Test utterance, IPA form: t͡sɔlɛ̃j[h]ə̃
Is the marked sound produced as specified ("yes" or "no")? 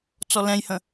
yes